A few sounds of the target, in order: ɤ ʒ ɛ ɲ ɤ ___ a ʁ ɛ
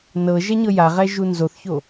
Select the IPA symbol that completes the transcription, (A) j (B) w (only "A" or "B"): A